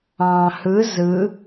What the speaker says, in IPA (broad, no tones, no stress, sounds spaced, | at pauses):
ɑ̃ h ɯ z ɯ